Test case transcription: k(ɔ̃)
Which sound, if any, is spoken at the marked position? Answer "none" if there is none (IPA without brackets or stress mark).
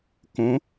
õ